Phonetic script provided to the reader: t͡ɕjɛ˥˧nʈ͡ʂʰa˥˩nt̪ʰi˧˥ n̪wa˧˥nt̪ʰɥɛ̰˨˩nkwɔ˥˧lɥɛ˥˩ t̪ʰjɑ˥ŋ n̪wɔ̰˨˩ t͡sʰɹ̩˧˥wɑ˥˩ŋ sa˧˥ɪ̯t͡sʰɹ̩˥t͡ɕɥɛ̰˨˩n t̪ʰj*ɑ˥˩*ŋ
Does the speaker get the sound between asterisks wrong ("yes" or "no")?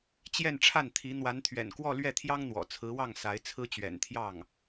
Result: no